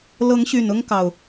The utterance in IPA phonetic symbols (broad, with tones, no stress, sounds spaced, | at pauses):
l ɤ˨˦ ŋ ɕ y˨˩ n ʊ˦ ŋ k ɑ˨˩ ʊ̯